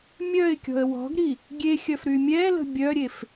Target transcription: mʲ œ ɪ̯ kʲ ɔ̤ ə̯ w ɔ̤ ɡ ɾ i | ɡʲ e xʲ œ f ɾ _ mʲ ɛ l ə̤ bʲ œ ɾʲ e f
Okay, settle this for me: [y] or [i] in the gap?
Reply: y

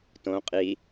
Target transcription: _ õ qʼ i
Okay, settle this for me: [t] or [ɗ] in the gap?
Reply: t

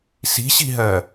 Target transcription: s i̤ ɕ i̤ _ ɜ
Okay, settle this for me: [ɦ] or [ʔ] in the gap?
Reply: ɦ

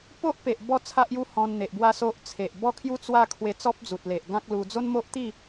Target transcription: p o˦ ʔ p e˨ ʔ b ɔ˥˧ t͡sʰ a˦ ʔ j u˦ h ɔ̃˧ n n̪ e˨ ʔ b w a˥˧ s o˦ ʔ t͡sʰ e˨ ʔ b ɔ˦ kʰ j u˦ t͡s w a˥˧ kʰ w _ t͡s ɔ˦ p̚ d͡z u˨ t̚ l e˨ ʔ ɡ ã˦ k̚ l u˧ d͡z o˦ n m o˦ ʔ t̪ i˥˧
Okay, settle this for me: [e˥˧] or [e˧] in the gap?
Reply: e˧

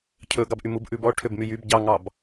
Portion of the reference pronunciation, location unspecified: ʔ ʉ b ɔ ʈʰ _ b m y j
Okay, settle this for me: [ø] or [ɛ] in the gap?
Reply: ø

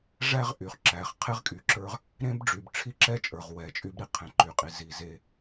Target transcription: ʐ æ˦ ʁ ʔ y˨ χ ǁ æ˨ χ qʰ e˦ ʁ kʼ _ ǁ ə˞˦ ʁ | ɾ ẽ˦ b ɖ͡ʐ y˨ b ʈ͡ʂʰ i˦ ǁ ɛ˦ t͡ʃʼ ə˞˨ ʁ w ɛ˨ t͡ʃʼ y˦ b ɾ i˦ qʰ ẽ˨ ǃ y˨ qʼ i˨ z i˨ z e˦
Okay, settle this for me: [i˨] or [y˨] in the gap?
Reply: y˨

